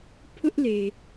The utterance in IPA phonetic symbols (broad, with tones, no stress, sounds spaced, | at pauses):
pʰ ʊ˦ ʔ l e˨